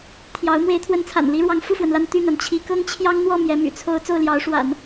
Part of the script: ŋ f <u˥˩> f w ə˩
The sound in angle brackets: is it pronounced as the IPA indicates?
yes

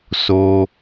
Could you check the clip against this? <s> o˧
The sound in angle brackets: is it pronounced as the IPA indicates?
yes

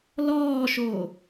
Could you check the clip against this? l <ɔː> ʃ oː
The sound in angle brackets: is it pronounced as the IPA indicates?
yes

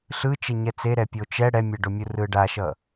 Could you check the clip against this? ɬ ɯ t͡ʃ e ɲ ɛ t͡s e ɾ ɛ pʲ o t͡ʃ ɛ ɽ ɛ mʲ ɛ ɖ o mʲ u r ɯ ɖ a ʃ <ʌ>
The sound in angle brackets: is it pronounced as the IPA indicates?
yes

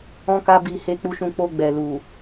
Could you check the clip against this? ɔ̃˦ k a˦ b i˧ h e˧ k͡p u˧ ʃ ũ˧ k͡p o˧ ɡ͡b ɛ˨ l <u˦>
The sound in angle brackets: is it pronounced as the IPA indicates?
no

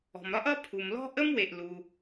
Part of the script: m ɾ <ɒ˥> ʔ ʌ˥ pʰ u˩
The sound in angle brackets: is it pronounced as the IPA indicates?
yes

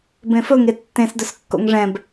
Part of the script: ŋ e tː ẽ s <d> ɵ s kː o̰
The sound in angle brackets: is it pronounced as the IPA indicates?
yes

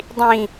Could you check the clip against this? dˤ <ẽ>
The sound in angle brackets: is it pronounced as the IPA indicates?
no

